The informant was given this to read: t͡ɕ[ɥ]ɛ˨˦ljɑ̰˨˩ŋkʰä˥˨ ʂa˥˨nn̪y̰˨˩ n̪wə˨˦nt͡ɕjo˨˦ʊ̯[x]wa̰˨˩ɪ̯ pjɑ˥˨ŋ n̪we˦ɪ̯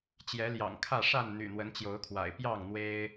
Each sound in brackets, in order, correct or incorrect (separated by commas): incorrect, incorrect